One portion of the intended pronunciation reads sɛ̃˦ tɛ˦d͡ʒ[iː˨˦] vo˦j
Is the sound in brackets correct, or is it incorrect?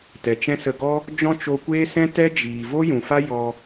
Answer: incorrect